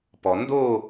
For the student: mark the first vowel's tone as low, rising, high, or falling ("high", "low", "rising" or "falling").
low